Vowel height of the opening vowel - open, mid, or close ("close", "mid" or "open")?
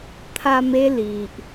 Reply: open